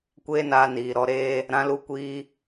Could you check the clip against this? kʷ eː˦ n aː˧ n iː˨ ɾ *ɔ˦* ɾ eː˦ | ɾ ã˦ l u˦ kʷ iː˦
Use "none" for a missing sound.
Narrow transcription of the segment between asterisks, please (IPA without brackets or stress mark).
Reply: ɔ˧